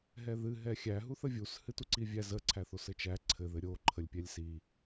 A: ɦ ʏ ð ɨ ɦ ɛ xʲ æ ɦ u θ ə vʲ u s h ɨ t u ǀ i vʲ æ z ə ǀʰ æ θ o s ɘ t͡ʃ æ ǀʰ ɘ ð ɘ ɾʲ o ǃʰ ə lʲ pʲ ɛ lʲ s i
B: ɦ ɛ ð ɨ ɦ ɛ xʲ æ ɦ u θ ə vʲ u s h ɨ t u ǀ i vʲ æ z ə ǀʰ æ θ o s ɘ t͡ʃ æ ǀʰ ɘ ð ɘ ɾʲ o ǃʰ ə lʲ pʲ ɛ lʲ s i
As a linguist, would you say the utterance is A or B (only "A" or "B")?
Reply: B